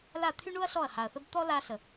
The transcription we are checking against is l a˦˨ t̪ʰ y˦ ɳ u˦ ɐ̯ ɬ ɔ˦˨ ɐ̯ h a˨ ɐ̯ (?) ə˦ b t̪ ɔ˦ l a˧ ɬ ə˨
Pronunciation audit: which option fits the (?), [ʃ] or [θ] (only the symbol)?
θ